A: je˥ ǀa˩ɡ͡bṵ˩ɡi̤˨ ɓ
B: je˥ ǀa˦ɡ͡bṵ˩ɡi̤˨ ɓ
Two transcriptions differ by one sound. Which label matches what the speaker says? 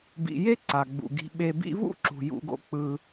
A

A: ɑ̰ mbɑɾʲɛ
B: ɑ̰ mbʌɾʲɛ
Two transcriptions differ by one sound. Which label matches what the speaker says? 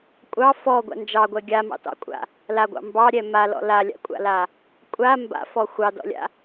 A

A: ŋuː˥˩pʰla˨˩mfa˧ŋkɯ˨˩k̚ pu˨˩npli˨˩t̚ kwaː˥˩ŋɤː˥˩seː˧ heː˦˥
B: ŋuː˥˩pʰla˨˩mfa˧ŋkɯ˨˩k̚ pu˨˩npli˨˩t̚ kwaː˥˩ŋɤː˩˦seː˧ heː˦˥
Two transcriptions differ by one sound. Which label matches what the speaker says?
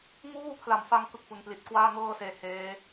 A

